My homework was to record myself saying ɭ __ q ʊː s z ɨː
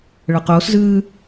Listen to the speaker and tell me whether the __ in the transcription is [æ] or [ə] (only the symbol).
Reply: ə